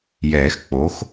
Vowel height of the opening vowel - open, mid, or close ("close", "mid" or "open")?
mid